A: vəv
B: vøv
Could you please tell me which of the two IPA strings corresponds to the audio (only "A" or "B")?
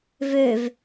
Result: B